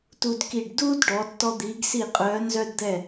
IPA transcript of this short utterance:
t u˧ d k i˧˩ ɖ d uː˥ d ɖ ɔ˩˧ tː ɔ˧ d̪ iː˩˧ ɡ s i˧˩ qʼ œː˩˧ n z œ˧ d d̪ ɛ˧˩

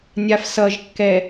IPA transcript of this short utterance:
nʲ a f s ʌ ʒ kː ɛ

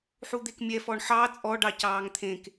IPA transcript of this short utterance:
ħ u d̪ e k mʲ ɛ f ɔ ɳ ħ ɑ t͡sʼ ɔ ɖ ɑ c ɑː ŋ t̪ʰ ẽ k

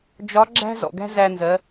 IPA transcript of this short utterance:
d͡ʒ ɒ˧˥ ɡ͡ǁ æ̤˥ z ɔ̰˩ ɡ æ̤˥ z æ˧ n z ɜ˩˧

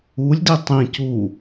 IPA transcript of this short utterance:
u lʲ d i tˤ ĩ c u

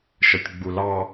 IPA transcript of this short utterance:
ʃ ə tʲ ɡ͡b u l ɑ

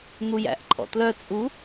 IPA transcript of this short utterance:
n̪ u j æ̰ ʔ ǃʰ ɔ̰ t l œ t͡sʼ u

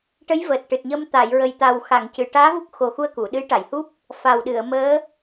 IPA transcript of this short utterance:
ʈ ə˧˥ j v əː˨˩ t̚ ʈ ɨ˨˩ t̚ ɲ əː˧ m t̪ a˨˩˨ j ɹ ə˨˩ j t̪ a˨˩ w x a˨˩˨ ŋ c ɨ˨˩˨ ʈ aː˧˥ v u˦˥ k̚ x o˨˩ x u˧ ə̯ k u˨˩˨ ɗ ɨ˧˥ j ʈ a˨˩˨ j h u˦˥ p̚ | f a˨˩ w ɗ ɨ˨˩˨ ə̯ m əː˧˥

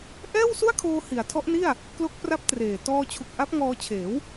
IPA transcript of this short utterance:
ʔ ɛː˥˩ w s u˥˩ a̯ kʰ oː˧ h i˩˦ a̯ tʰ ɔ˦˥ ʔ n i˥˩ a̯ | k l o˦˥ k̚ p r a˦˥ p̚ t r eː˨˩ t ɔː˧ t͡ɕʰ u˨˩ k̚ ʔ a˦˥ p̚ ŋ ɔː˧ t͡ɕʰ eː˩˦ w

